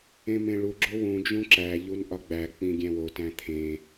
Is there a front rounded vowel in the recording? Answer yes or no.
no